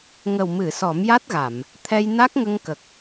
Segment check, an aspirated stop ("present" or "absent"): present